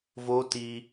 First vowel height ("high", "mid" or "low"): mid